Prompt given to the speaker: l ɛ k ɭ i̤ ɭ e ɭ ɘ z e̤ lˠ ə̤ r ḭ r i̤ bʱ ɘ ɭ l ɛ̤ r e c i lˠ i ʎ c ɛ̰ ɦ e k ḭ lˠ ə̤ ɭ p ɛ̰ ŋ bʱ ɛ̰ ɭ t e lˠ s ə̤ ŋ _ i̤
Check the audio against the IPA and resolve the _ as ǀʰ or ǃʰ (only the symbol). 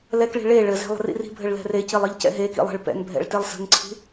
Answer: ǀʰ